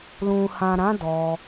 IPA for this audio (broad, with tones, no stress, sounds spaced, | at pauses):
l ũ˨ h ã˨ ɾ ã˨˦ d ɔ˧